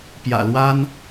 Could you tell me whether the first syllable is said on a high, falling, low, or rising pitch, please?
low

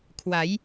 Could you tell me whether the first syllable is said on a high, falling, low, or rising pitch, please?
rising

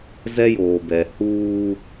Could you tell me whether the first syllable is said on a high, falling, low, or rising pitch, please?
high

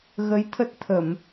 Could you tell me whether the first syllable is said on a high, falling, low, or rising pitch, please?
rising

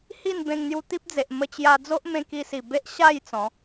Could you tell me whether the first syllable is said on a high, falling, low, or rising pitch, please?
falling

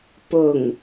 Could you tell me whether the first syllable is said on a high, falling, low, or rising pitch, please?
low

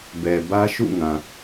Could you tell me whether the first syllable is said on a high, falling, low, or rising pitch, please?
low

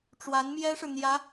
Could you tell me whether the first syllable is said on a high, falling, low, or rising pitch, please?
rising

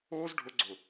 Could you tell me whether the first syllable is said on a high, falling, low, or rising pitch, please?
high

